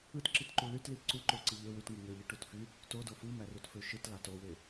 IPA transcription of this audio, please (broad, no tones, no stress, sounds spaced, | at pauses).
ɯ t ǁ i t ǃ u l y t l i ǀ u ǃ o ǀ i ʎ ø w y t ŋ ɯ ŋ ø ʎ i ʈ u t f y | t o d o f ɯ m æ r u t f ø ʃ ɯ t l ɑ t o w e